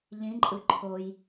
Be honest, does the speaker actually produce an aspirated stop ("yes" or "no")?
yes